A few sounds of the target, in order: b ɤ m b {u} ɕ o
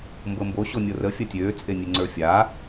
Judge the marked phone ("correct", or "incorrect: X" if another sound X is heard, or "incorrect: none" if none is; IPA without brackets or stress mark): incorrect: o